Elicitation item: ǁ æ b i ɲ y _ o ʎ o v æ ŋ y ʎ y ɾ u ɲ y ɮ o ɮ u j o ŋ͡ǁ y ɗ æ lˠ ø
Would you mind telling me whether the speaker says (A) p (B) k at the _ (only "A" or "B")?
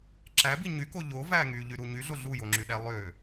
B